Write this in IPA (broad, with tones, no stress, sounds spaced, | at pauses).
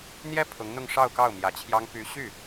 n̪ j ɛ˥ pʰ ʊ˧˥ ŋ n̪ ʊ˥˧ ŋ ʂ ɑ˥˧ ʊ̯ k ɑ˥˩ ʊ̯ m j ä˧˥ t͡ɕʰ j ɑ˥ ŋ p y˧˥ ɕ y˥˩